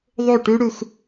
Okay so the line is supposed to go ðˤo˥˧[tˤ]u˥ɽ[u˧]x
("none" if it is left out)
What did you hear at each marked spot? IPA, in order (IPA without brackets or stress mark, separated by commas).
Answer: ʈ, u˧